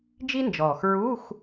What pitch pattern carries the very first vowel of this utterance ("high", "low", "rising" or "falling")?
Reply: high